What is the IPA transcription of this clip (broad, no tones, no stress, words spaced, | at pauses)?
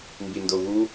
mbindoɣu